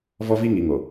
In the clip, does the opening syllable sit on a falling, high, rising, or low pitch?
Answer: high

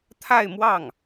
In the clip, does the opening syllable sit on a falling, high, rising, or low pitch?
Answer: falling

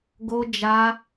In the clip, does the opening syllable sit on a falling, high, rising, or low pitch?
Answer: high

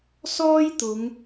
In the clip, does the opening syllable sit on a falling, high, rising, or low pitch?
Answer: high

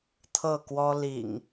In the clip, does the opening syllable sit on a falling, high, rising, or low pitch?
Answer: falling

